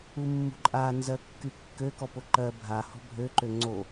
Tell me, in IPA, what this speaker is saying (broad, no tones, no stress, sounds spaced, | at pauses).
u mː ṳ ǃʼ a n z ɜ kː y kː ø k ɔ p o ǃ ɜ bʱ a h ɔ̤ bʱ ø ǃ ø ŋ͡ǀ o